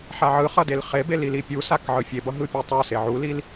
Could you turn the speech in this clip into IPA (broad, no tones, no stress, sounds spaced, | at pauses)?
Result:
ħ a ʕ ɯ χ ʌ d e l χ e b e l i l i pʲ u s a k ʕ ɯ fʲ e b ʌ ɦ ɯ pʲ u tˤ u s e ʕ u l i l